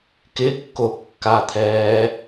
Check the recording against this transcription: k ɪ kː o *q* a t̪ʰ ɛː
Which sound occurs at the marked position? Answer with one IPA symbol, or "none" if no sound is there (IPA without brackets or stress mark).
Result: kː